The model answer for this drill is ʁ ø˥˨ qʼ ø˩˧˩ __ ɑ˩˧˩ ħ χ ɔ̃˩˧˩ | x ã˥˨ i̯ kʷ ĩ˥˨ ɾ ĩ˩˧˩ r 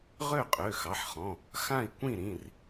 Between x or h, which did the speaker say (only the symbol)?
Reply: x